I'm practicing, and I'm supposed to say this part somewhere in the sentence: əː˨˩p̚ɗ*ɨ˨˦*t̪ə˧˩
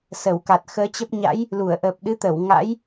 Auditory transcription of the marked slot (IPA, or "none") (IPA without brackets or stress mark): ɨ˨˦